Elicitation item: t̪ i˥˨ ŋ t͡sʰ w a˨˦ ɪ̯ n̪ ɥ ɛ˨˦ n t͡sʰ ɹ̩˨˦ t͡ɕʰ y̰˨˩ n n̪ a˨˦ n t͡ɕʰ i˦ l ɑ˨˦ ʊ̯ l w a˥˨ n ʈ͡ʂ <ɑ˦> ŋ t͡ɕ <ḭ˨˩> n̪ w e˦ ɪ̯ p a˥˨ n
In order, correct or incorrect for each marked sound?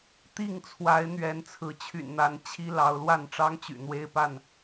correct, incorrect: y̰˨˩

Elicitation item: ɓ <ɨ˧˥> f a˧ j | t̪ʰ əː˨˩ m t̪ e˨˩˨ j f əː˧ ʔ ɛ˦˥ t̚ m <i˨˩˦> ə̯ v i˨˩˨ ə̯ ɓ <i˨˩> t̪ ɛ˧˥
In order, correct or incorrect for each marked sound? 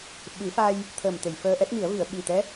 incorrect: ɨ˨˩˦, correct, correct

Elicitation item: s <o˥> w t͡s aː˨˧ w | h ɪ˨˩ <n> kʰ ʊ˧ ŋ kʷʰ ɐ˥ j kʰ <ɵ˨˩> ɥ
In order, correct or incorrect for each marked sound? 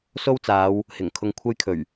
correct, incorrect: ŋ, correct

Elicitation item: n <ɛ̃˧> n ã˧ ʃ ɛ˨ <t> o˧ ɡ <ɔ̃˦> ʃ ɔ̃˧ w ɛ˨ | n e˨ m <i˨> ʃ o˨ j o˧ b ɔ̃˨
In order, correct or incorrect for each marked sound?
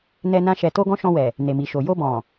incorrect: ɛ˧, correct, correct, correct

